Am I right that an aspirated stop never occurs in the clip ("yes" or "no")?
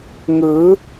yes